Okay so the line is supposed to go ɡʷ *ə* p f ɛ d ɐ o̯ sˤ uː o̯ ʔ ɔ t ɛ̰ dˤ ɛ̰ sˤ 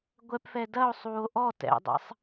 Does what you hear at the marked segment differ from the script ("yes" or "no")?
yes